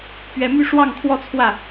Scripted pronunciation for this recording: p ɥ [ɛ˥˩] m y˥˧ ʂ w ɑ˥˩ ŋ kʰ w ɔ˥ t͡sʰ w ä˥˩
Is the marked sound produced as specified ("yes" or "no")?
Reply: no